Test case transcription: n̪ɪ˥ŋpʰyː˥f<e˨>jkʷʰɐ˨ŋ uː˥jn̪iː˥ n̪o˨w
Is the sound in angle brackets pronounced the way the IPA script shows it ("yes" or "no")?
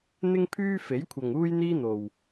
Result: no